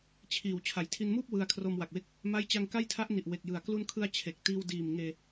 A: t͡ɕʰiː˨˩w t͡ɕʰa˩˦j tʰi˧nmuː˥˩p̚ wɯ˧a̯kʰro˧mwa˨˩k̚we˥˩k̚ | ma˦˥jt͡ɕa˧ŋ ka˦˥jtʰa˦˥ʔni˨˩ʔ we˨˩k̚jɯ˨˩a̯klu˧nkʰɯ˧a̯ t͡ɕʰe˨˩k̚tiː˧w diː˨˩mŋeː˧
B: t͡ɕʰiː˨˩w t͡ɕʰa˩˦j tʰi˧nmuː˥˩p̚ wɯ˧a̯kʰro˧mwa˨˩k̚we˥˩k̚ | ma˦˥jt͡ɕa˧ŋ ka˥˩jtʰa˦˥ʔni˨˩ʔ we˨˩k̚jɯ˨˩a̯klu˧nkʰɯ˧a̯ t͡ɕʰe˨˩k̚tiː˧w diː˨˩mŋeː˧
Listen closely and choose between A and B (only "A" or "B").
B